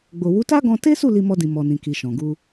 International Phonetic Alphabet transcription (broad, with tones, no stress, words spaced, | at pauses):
ɡ͡bo˨wu˨˦ta˦ɡɔ̃˧ te˦su˦˨ li˧mɔ˧dĩ˨ mɔ˨nĩ˨ki˨ ʃɔ̃˨ɡu˧